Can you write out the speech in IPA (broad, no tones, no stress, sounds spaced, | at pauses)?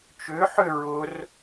t͡ʃ ʏ ħ ʏ ɹ ʊ r